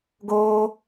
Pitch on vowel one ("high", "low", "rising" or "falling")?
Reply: high